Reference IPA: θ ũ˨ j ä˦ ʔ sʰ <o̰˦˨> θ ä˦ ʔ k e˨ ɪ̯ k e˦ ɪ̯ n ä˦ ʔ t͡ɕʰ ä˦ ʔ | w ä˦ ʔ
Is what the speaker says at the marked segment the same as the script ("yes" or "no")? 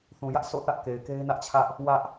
yes